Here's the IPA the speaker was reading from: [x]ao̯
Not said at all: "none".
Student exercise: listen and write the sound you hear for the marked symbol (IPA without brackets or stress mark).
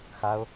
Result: x